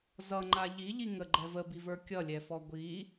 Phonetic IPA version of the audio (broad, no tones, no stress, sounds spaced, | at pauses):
z ʌ ŋ͡ǃ a ʎ i ʎ i ŋ ə ɡ͡ǃ ɛ v ə b i v ə˞ kʲ ʌ lʲ ɛ f ɔ ɡʷ i